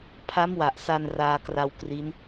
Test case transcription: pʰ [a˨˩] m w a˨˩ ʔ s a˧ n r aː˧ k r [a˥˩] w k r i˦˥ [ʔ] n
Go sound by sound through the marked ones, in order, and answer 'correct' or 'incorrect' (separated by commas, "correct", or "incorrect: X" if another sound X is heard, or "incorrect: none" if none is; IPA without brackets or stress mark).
incorrect: a˦˥, incorrect: a˧, incorrect: none